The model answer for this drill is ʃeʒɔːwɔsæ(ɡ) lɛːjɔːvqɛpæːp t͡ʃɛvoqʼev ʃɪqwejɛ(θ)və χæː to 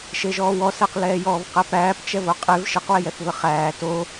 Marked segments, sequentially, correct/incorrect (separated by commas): incorrect, correct